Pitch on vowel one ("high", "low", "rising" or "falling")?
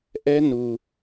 high